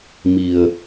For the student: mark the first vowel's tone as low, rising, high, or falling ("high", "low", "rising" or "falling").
low